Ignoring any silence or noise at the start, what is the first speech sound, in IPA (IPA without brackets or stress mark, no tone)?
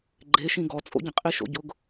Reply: ɡ͡ǃ